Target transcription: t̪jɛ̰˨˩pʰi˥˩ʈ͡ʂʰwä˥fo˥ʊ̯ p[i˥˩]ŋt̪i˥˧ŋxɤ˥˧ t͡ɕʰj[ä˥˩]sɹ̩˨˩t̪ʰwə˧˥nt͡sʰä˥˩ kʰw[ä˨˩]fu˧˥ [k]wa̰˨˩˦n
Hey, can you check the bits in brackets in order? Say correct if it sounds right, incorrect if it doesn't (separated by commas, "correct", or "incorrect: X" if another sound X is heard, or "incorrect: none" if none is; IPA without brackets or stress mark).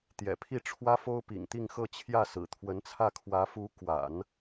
incorrect: ḭ˨˩, correct, incorrect: ä˧˥, correct